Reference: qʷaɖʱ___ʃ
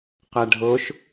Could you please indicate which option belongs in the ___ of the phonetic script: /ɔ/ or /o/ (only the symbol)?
o